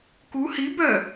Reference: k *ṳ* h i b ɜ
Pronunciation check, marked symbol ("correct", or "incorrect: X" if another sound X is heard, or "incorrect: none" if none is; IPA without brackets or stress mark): incorrect: u